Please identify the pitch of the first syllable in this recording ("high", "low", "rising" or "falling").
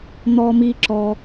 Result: high